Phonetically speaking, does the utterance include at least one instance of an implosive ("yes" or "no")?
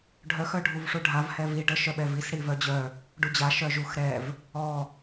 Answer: yes